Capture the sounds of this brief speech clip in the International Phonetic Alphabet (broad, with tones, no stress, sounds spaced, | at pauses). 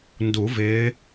n d u˨˩˦ v ɪː˨˦